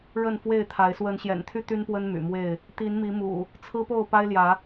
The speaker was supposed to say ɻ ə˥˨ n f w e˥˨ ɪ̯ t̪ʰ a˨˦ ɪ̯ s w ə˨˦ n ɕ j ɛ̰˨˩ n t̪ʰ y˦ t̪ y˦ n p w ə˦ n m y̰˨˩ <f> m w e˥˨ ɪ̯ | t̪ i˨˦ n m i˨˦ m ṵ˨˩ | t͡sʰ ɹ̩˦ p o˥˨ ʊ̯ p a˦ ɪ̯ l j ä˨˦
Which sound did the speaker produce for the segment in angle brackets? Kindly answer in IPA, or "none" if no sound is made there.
none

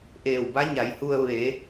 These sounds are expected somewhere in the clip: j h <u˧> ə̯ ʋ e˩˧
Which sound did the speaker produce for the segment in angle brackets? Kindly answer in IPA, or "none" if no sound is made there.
u˧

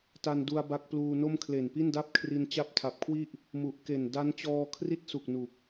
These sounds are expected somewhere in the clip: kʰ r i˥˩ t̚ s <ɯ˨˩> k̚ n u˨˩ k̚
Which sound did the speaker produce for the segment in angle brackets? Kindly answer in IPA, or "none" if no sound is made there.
u˨˩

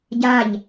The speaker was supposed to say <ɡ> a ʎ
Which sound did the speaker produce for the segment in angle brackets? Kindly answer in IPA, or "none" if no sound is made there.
ɟ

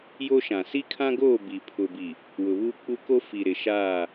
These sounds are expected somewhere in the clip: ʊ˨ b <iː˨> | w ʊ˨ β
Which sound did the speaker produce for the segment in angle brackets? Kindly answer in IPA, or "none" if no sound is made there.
i˨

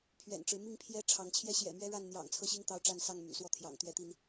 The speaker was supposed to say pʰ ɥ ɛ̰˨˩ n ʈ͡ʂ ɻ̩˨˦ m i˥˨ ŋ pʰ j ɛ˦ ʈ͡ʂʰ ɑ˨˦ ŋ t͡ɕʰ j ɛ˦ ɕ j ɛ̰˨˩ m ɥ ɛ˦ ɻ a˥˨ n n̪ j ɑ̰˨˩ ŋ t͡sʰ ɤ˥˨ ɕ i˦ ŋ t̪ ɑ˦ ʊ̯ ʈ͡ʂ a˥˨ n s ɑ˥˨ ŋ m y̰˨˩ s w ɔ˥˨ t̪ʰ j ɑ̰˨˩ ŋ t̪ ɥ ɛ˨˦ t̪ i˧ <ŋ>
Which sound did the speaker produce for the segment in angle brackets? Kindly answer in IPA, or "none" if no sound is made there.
n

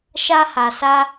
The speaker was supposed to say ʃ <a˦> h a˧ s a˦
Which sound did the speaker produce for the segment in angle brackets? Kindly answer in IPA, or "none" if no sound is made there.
a˦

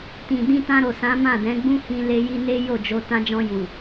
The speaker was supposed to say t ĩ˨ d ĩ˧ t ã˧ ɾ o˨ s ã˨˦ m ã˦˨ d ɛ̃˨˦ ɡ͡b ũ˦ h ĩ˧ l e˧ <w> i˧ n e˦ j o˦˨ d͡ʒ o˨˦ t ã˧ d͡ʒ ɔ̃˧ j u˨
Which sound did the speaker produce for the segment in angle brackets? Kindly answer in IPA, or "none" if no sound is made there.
j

